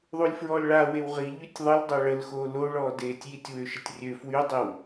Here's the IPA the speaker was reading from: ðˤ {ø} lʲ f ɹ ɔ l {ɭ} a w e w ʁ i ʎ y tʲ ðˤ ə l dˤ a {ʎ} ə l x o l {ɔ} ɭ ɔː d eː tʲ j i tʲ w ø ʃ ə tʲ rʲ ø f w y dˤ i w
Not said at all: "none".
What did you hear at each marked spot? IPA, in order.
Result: u, ɭ, ɭ, o

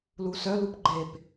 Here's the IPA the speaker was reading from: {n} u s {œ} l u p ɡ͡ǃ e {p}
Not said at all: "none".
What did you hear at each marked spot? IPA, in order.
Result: l, œ, p

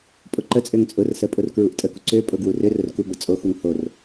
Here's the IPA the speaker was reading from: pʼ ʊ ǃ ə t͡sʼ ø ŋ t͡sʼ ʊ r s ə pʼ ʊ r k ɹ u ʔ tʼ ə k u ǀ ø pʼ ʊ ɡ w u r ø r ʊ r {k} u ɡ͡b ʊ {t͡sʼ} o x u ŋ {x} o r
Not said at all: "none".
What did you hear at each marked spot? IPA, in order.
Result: k, t͡sʼ, h

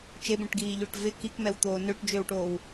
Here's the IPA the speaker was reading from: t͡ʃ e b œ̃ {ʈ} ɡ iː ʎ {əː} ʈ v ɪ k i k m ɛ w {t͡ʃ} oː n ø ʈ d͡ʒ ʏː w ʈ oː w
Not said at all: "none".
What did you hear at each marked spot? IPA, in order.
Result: ʈ, ʏː, t̪

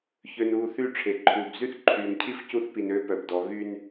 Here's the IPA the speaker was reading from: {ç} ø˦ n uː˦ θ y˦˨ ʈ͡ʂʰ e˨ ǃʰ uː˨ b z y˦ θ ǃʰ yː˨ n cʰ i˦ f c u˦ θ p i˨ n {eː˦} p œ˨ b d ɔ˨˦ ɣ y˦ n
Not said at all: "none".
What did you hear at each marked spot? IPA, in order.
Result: ç, øː˦

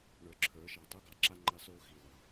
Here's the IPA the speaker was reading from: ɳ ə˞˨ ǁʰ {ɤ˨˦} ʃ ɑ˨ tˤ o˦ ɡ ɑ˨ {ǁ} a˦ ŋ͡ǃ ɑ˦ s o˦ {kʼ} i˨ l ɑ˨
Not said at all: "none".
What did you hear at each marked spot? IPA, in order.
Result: ə˞˨˦, ǁ, x

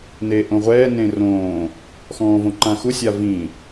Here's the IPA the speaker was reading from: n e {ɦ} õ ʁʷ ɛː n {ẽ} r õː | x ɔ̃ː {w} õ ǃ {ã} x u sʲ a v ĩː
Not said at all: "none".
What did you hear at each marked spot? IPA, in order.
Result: ʔ, ẽ, v, ã

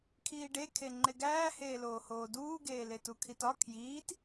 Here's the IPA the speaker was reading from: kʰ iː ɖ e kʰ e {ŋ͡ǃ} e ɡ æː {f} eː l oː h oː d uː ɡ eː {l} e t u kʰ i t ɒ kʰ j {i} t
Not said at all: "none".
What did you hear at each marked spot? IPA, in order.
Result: ŋ͡ǃ, h, l, iː

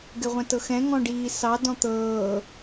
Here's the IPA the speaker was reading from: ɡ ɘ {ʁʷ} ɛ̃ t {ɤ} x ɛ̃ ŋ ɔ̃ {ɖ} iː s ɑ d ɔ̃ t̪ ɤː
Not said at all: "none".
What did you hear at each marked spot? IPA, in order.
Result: ʁʷ, ɤ, ɖ

